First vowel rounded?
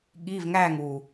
no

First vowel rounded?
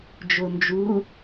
yes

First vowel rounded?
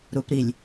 yes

